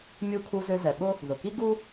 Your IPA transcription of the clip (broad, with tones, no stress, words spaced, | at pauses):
mʲu˧kʰu˧zø˧zɛ˩ ɓʊ˥ | ðʊ˩ki˥ ɡu˥